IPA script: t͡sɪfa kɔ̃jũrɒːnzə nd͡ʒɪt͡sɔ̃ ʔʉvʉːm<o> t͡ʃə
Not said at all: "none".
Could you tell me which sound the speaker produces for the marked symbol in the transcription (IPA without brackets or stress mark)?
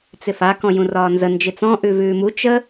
u